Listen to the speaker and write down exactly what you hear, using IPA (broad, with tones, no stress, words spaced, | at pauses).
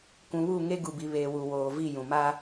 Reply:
kʷũ˨βu˦˨ ŋe˦ ɡu˨bi˨ βeː˨wu˨ woː˨vi˦˨jũ˨ ma˦